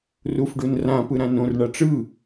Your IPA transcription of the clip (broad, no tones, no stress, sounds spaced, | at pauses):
r u f ɖ u n r ã p ɯ ɾ ã n õ r ɳ a ʈ͡ʂ ɯ